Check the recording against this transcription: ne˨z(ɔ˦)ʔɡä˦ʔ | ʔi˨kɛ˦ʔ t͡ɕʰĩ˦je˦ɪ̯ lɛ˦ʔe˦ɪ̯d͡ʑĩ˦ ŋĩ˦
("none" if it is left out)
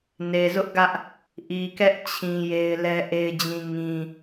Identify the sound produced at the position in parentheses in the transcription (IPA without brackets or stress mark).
ʊ˦